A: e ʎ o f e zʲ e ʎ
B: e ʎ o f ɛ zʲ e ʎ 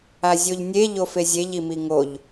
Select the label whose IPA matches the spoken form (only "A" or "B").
A